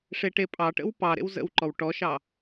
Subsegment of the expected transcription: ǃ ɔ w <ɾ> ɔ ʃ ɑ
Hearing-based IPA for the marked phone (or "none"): ʈ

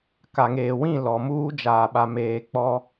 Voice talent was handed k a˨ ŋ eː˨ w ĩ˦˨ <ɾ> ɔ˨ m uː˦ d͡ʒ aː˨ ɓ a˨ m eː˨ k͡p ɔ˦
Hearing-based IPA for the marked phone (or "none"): l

